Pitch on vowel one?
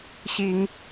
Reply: rising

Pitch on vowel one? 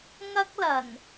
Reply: high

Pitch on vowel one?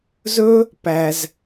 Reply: high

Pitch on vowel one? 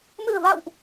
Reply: low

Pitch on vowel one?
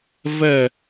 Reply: falling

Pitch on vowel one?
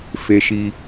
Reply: low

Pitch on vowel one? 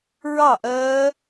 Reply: falling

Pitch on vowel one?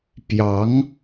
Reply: rising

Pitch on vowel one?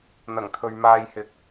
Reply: low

